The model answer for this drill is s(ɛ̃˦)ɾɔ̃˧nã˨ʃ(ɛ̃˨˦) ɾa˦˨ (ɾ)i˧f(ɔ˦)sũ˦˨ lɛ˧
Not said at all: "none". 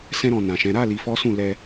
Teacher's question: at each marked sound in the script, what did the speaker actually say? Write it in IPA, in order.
ɛ̃˦, ɛ̃˨˦, l, ɔ˦

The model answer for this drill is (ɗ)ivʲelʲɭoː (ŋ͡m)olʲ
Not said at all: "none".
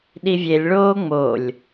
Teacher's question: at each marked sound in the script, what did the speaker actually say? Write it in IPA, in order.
ɗ, ŋ͡m

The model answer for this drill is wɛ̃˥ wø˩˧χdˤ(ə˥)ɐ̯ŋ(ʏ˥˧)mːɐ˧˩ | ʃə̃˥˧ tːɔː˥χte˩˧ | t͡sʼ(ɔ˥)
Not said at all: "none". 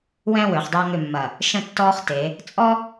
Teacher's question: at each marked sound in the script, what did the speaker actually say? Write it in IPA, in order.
ø˥, ʏ˥˧, ɔ˥

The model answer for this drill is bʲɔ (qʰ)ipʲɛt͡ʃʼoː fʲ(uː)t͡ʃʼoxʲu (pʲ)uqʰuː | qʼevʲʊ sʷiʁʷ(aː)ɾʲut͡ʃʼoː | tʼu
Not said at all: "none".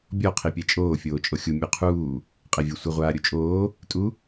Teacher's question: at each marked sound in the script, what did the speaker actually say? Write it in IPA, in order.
qʰ, oː, mʲ, aː

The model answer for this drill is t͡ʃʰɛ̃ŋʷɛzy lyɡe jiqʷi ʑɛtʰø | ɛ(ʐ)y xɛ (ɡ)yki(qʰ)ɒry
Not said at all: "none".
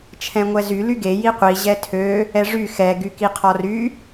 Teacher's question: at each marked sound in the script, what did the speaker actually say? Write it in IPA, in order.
ʐ, ɡ, qʰ

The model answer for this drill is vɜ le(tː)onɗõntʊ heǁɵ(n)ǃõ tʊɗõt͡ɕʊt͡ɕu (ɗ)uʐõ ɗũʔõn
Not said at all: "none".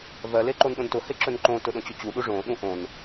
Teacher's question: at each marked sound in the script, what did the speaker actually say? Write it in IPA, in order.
ǃ, n, ɗ

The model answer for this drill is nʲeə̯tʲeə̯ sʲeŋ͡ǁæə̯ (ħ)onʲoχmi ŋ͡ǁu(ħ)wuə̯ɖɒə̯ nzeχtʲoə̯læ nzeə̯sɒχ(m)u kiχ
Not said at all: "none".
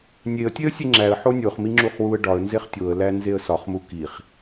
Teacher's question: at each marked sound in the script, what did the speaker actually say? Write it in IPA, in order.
ħ, χ, m

